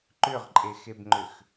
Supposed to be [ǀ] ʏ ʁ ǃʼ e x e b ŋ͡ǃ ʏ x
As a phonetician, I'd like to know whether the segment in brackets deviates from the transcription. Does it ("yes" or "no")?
yes